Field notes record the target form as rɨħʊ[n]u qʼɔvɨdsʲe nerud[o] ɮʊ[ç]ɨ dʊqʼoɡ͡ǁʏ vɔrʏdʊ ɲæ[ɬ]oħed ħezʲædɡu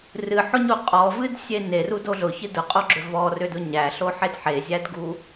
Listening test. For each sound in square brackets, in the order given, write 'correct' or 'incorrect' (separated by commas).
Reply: incorrect, correct, correct, correct